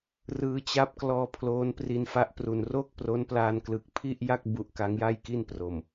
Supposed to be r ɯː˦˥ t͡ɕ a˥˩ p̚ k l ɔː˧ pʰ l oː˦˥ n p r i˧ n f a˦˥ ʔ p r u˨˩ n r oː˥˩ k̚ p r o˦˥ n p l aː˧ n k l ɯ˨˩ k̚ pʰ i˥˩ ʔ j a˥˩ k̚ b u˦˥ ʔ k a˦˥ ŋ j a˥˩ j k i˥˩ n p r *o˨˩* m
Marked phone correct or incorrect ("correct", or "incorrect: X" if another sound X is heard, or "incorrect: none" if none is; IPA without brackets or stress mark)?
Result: correct